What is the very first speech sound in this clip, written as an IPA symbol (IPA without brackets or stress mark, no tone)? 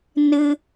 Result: n